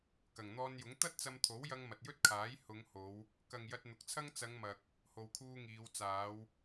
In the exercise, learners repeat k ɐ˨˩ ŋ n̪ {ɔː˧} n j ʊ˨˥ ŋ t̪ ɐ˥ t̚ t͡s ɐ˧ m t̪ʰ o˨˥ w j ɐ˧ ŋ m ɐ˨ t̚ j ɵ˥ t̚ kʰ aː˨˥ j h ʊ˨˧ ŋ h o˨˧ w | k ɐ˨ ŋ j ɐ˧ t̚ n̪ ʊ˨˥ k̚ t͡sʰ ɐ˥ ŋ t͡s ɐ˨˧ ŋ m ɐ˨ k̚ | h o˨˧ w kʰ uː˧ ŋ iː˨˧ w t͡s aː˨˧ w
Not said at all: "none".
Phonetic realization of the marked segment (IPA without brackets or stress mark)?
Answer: ɔː˧